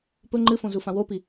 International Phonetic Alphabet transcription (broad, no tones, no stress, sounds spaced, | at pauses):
p ɵ ŋ͡ǃ ɨ f õ z u f ã w o p i